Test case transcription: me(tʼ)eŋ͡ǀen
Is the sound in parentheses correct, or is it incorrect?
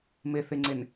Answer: incorrect: θ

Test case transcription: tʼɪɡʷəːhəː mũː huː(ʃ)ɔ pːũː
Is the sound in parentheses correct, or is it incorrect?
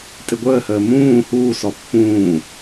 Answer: incorrect: s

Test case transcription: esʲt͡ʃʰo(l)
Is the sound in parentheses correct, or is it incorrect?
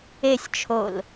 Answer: correct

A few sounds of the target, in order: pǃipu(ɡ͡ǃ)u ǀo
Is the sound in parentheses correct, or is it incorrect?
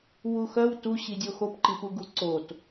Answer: incorrect: ɡ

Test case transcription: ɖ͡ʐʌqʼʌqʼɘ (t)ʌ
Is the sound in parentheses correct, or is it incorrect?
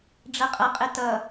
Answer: correct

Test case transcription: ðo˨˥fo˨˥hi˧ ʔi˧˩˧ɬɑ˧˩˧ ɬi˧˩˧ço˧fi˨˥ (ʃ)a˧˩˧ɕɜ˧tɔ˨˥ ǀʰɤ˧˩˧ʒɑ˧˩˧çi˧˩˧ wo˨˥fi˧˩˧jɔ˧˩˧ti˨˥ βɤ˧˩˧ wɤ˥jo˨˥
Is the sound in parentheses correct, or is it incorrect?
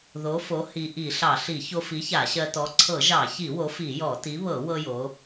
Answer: incorrect: ç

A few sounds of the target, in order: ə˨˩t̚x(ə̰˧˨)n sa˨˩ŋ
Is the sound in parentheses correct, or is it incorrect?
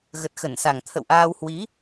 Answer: incorrect: ə˧˩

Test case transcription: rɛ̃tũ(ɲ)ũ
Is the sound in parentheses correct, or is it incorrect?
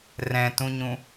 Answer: correct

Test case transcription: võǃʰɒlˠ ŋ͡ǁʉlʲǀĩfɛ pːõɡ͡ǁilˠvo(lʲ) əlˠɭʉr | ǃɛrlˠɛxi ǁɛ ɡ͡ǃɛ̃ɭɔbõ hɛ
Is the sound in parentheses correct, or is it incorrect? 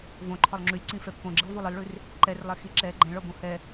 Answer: incorrect: lˠ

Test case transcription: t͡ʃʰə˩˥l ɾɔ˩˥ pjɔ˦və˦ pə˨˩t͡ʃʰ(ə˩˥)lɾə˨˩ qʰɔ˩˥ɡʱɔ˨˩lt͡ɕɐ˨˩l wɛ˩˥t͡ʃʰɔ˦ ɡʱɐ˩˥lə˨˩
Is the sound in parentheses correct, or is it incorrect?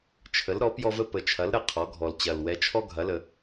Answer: incorrect: ɐ˩˥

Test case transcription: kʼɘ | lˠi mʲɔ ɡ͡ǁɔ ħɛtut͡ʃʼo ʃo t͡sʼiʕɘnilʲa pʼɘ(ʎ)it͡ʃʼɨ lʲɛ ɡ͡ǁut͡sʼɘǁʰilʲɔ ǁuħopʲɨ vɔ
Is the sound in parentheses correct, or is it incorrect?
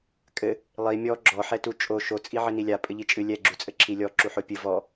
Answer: correct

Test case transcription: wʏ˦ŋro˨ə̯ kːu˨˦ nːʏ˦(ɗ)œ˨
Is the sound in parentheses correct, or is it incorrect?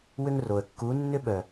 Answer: incorrect: ɓ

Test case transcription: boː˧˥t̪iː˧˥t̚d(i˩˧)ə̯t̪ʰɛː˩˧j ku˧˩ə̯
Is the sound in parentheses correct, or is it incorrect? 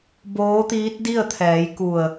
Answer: incorrect: i˥˨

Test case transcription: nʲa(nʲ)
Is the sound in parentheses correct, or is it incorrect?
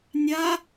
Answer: incorrect: none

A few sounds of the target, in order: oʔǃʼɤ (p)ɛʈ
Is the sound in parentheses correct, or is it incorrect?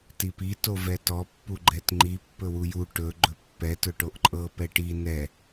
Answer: correct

